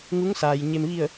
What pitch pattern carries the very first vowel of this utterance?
rising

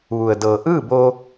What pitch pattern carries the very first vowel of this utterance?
low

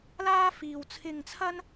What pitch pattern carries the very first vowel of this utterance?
high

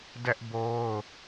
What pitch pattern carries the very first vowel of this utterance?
high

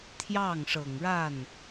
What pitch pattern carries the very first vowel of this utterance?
falling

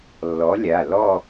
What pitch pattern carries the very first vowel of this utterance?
rising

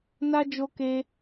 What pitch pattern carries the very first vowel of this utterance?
high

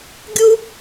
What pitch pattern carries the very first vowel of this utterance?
high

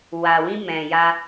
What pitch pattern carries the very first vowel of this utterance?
low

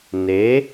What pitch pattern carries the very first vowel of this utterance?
rising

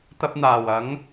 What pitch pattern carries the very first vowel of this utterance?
high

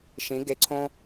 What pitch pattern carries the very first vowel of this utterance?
rising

